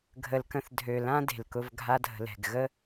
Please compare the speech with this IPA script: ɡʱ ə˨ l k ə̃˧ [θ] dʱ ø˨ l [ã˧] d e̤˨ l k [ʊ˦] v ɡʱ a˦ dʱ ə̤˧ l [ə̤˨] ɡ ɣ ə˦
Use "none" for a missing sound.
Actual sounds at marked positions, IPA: θ, ã˦, ʊ˧, ɛ̤˨

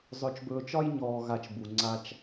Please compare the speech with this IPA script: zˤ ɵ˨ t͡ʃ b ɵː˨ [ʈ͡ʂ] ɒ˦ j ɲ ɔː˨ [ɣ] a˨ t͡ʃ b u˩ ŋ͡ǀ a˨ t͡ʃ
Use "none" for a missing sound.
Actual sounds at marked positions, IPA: t͡ʃ, ɣ

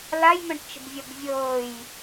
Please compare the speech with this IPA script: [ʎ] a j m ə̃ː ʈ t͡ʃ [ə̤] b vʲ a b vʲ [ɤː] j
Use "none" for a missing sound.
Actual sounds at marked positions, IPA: l, ə̤, ɤː

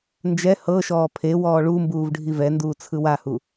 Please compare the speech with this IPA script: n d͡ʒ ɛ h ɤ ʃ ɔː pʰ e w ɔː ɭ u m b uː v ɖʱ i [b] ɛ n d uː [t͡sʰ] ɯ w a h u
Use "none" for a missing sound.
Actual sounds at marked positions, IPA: v, t͡sʰ

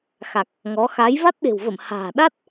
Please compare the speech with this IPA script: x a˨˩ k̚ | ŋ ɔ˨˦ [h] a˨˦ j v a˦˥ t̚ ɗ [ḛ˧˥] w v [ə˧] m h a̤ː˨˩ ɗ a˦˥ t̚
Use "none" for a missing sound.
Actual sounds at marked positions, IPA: x, e̤˨˩, ə˧˩

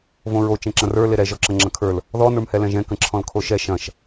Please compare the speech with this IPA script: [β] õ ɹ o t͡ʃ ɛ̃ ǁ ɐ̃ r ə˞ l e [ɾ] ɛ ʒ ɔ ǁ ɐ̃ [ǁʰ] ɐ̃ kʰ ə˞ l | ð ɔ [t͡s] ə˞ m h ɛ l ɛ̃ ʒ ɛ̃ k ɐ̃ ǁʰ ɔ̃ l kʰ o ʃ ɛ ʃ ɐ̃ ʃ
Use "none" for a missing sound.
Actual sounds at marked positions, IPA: v, ɾ, ŋ͡ǁ, n

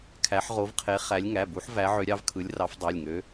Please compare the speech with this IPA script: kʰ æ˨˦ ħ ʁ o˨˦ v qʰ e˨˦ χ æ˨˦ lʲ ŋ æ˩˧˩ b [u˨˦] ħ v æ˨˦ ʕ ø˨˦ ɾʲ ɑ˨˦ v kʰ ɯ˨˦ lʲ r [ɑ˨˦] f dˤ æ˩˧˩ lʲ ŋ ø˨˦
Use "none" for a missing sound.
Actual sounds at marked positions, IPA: u˨˦, ɑ˨˦

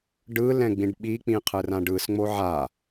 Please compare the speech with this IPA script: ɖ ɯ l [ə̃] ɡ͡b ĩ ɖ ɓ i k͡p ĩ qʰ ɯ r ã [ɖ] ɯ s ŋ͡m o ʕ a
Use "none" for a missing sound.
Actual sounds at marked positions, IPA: ɛ̃, ɖ

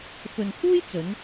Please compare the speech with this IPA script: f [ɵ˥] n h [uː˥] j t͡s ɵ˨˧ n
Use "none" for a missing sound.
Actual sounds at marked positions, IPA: ɵ˨, uː˥

